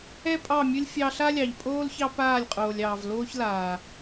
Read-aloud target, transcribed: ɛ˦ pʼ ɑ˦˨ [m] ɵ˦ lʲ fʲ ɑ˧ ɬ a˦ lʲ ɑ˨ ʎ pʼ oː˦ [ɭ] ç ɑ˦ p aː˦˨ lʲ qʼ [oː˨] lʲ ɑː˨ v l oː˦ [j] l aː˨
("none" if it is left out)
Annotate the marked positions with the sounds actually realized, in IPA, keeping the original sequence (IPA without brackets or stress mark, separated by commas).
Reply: mʲ, l, oː˨, ç